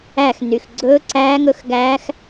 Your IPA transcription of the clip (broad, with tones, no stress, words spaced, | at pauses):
æ˥˧x ny˨xɡ͡ǀɵː˦˥ǀæː˦˥ŋɵ˦˥x ɡæː˦˥x